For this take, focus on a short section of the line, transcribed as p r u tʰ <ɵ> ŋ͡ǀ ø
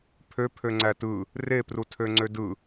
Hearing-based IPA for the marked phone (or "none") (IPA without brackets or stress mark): ø